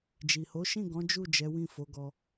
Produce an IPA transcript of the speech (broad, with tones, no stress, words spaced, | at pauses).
d͡ʒi˨ho˨˦ʃĩ˦˨ ɡɔ̃˨˦d͡ʒu˦˨ d͡ʒɛ˨˦wĩ˦˨fo˨˦ɡɔ˧